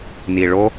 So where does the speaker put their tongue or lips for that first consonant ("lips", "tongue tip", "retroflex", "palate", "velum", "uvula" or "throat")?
tongue tip